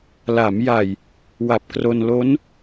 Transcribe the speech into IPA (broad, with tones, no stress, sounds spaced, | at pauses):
l a˩˦ m j a˨˩ j | w a˨˩ p̚ k r o˧ n l o˦˥ n